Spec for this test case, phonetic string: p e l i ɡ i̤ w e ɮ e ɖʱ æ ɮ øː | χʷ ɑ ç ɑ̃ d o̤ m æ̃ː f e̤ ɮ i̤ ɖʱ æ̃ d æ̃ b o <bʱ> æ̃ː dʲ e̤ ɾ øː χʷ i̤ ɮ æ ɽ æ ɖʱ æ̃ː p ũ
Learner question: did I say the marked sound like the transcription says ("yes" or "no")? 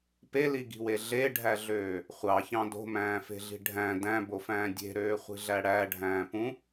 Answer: no